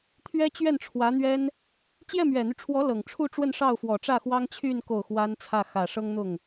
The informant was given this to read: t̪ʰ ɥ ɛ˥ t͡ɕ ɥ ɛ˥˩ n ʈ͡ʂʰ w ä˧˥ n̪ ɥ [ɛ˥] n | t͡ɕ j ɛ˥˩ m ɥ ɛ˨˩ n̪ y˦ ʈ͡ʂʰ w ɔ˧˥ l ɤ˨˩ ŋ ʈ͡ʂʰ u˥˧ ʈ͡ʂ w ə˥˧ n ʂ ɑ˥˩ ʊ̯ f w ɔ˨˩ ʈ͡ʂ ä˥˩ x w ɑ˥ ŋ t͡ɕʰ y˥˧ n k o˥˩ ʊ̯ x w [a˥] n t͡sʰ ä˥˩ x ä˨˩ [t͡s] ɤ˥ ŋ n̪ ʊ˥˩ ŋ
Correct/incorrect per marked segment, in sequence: correct, correct, incorrect

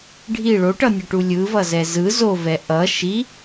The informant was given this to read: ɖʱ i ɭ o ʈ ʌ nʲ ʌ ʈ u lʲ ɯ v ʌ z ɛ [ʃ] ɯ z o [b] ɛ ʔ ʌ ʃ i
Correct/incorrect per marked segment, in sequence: incorrect, incorrect

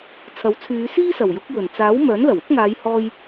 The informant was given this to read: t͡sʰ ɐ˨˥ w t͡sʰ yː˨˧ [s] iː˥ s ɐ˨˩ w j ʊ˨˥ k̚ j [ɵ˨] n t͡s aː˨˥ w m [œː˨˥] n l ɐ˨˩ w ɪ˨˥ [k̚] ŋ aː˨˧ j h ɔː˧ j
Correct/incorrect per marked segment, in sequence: correct, incorrect, correct, correct

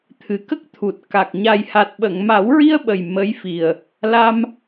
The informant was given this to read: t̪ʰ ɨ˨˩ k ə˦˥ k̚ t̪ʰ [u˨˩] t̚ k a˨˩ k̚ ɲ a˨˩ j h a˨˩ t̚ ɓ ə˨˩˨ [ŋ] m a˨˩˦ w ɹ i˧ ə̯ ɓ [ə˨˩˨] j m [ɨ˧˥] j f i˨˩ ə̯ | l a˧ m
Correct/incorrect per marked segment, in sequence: correct, correct, incorrect, incorrect

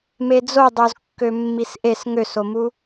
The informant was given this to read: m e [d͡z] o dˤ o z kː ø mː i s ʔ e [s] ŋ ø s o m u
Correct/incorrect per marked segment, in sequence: correct, correct

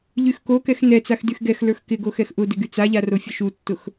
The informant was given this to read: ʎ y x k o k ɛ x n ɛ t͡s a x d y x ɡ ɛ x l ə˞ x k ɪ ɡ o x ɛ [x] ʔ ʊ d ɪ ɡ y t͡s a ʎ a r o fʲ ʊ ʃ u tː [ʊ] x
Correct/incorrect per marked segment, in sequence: correct, correct

